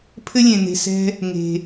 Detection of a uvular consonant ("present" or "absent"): absent